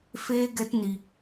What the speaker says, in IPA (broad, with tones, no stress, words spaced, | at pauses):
feː˦ɡɛ˦tni˧